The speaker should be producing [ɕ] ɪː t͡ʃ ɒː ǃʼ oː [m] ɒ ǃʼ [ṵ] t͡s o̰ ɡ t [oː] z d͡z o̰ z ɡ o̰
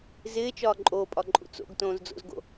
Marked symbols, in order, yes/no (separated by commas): no, no, yes, no